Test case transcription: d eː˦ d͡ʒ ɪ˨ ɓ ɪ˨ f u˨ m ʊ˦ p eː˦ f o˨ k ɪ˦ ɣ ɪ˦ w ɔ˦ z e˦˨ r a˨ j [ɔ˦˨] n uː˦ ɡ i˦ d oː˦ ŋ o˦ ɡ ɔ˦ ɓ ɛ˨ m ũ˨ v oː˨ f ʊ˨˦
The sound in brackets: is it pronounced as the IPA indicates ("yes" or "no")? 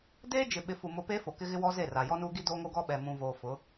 no